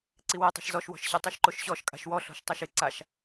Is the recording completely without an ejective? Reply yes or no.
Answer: no